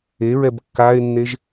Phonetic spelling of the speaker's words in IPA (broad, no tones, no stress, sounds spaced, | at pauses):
e ɹ ɛ b kː a e̯ nː e ʒ